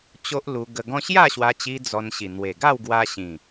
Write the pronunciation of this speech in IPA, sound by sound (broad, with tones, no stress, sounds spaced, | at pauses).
t͡ɕ o˦ ʔ l u˧ ɡ ə˧ ɡ ɔ̃˦ ɕ j a˥˧ ɕ w a˧ t͡ɕ i˧ d͡z ɔ˧ n ɕ i˨˩ n̪ w e˨˩ ɡ a˥˧ w ɡ w a˧ ɕ ĩ˨˩